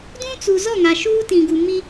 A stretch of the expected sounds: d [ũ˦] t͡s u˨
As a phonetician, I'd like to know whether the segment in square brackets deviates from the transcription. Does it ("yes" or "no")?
no